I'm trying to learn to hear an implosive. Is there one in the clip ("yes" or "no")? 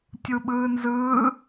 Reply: yes